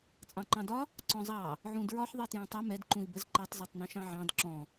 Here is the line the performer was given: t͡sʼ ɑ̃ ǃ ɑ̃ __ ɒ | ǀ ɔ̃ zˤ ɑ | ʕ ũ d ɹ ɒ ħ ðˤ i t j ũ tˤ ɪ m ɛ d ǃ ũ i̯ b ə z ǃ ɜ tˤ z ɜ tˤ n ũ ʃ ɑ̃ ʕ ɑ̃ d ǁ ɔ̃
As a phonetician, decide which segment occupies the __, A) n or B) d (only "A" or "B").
B